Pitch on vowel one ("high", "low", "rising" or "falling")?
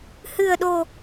low